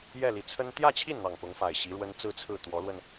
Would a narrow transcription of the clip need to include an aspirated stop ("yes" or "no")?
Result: yes